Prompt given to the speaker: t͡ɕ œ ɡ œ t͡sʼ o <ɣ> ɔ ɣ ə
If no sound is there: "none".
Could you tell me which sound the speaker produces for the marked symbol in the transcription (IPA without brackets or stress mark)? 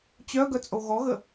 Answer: ɣ